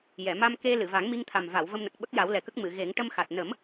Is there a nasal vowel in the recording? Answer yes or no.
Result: no